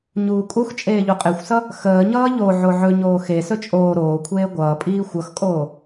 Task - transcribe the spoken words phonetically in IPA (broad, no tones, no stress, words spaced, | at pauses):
ɲuːkʼux t͡ʃʼeːʎuqʼexʷsʌ | xəːɲʌː ʎo ʕoʕɵ ɲoːxe sɵt͡ʃʼoː ɾoːkʷʰeː ɡʷʌːpʼiː xʷʌxkʼoː